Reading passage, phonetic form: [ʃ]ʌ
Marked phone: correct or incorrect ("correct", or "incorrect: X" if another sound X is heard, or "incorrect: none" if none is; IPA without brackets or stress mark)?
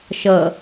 correct